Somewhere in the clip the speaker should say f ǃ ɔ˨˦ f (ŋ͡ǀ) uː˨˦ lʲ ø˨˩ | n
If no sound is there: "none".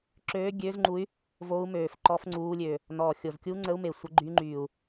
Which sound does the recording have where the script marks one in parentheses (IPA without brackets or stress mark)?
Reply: ŋ͡ǀ